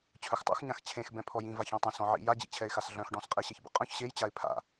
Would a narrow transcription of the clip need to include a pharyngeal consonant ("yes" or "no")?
yes